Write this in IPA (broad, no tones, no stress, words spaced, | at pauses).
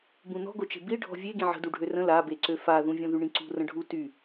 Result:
bũnɔ̤ɡot͡ʃe̤ biɖʱɔ̤ vʲe ɡĩʕə̤ duɖʱørə̃ labeǀø faðũ vʲɔ̃ðyɳĩǀṳ rə̃ɖʱu ty